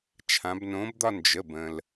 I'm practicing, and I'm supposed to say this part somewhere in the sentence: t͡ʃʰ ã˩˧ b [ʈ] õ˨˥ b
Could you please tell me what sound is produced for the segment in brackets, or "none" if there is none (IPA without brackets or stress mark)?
n